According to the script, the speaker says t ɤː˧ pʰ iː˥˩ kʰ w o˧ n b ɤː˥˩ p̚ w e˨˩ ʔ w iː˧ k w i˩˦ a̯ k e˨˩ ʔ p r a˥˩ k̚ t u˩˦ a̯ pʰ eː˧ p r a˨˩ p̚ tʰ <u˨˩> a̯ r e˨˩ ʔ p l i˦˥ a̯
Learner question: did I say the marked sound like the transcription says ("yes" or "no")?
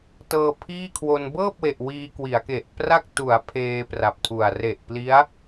yes